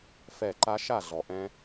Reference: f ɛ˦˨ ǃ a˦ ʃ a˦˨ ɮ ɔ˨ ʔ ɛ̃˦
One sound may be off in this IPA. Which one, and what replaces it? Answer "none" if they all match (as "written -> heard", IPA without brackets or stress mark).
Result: none